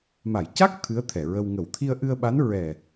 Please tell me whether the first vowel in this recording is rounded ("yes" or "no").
no